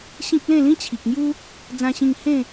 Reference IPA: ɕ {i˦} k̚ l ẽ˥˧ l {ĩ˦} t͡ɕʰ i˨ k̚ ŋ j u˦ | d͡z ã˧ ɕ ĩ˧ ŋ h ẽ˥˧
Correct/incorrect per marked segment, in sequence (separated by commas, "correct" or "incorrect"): incorrect, correct